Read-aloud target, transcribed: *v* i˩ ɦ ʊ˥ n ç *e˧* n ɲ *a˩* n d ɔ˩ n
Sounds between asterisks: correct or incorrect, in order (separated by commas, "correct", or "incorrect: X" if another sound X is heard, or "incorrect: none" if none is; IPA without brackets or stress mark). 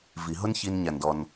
correct, incorrect: i˧, correct